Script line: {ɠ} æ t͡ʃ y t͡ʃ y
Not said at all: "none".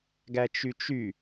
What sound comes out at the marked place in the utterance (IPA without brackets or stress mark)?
ɡ